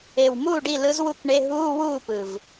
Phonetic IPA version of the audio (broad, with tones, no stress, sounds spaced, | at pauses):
e˨˩ w m uː˥˩ ɖ i˥˩ l ɯ˧˥ z w u˥˩ k ɳ e˧˥˧ ɦ uː˧˥˧ w uː˥˩ p ɯ˨˩ v